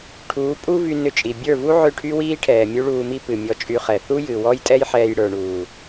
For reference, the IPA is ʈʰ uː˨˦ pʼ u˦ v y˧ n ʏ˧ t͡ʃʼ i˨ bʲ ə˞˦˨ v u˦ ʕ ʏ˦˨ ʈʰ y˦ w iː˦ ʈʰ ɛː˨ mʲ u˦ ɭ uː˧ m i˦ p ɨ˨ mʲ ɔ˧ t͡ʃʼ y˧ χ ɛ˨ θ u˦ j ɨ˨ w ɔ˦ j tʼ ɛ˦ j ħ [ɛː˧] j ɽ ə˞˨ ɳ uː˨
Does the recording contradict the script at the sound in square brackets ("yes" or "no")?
no